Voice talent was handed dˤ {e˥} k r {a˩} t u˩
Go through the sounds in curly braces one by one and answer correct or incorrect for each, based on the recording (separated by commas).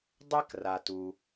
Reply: incorrect, correct